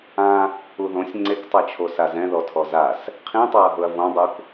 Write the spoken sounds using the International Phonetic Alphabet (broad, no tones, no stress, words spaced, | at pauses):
ã | uðõsʲ ŋ͡ǀektˤɛt͡ʃʰo sazɛ̃ðɔtʰɔ zas | qʰĩtˤaɐ̯ɦʊɐ̯ võdˤuk